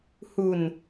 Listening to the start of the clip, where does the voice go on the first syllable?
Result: low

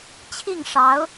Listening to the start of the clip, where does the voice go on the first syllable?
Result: falling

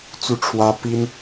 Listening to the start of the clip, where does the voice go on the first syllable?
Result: falling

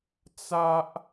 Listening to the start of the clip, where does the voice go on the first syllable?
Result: high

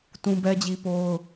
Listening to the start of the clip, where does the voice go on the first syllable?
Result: high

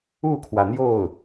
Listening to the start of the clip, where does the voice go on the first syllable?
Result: falling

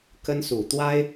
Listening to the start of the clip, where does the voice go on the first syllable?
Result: high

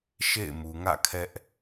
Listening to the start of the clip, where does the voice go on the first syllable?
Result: falling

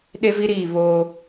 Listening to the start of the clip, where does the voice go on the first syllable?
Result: high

